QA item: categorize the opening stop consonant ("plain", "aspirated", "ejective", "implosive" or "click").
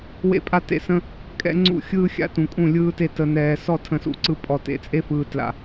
ejective